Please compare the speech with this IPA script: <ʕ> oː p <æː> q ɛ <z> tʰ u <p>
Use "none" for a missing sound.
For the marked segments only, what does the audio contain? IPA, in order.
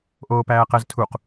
ʔ, æː, z, q

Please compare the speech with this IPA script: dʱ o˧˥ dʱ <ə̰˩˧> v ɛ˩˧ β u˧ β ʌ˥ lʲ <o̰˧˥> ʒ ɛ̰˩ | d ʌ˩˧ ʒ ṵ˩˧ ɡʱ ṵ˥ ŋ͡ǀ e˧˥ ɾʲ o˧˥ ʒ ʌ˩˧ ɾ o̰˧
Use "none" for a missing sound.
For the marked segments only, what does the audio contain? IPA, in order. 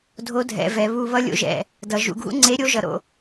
ɛ̰˩˧, o̰˧˥

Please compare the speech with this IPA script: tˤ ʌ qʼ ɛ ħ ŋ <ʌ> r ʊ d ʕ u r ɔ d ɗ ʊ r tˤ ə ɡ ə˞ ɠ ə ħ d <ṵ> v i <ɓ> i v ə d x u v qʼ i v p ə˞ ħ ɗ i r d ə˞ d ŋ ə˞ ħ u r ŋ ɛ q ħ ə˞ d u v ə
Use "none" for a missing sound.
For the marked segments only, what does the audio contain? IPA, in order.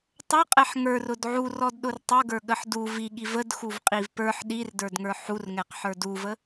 ə˞, u, ɠ

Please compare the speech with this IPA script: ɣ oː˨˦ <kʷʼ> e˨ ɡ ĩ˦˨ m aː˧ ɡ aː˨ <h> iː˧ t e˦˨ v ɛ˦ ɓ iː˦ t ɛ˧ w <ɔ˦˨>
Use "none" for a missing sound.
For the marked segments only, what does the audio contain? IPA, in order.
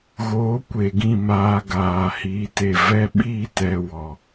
kʷ, h, ɔ˧

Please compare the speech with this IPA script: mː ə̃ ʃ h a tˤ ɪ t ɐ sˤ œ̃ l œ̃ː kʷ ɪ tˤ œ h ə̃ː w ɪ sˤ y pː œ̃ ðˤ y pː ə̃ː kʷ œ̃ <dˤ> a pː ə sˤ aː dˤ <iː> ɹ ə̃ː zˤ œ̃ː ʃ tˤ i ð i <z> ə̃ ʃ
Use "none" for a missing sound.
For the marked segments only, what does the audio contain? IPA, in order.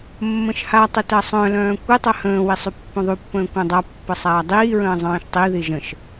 dˤ, iː, ʒ

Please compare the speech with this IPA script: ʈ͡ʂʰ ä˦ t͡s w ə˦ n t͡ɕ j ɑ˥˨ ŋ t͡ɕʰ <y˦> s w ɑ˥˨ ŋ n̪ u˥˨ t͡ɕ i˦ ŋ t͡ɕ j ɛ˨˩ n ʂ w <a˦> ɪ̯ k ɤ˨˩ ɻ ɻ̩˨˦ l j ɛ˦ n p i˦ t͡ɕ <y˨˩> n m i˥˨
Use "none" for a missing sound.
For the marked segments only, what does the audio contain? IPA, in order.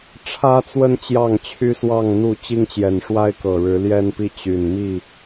y˦, a˦, y˨˩

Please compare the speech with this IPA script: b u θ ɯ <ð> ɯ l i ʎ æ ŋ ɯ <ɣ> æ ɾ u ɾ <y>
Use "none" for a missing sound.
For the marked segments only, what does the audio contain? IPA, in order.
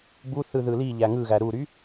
ð, ɣ, y

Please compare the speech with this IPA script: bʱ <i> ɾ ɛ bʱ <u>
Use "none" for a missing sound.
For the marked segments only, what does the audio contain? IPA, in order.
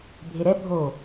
e, o

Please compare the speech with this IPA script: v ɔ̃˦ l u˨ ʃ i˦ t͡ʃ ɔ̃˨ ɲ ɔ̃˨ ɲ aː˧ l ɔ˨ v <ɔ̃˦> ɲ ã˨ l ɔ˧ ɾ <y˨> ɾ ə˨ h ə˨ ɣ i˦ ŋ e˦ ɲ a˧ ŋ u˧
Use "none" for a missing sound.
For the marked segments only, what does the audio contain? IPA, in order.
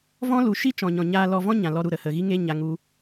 ɔ̃˦, u˨

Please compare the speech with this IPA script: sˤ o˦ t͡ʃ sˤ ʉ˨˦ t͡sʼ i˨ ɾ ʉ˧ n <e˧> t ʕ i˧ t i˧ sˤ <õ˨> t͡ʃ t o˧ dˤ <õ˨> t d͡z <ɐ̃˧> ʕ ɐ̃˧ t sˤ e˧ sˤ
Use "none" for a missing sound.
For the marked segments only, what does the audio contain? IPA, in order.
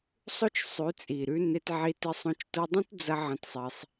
e˧, õ˧, õ˦, ɐ˧

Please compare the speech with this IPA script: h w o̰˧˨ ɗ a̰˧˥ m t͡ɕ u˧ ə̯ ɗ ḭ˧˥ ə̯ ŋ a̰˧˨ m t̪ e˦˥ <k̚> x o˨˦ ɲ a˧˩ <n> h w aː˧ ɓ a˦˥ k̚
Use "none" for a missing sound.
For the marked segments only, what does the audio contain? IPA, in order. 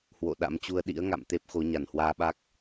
p̚, n

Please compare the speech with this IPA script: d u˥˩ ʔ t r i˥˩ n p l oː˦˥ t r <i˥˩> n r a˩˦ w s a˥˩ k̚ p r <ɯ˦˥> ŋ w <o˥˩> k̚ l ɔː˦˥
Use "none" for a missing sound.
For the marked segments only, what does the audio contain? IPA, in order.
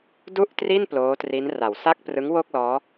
i˦˥, ɯ˦˥, o˥˩

